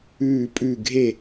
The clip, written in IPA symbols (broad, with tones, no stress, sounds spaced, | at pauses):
ʉː˦˨ pʼ ʉ˦˨ ɡʱ e˦˨